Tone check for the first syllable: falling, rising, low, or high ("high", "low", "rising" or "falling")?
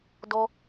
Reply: high